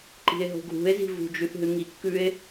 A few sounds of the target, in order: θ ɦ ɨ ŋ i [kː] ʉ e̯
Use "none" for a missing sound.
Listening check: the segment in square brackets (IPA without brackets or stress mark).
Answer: kː